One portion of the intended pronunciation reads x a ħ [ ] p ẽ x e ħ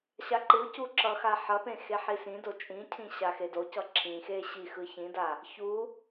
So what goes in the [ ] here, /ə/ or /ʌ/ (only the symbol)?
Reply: ʌ